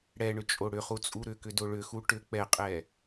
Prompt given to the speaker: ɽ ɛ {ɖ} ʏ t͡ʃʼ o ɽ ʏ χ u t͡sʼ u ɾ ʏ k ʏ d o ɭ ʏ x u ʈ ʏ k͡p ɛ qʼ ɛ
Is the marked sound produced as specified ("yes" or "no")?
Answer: no